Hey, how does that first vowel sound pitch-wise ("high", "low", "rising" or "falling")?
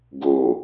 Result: low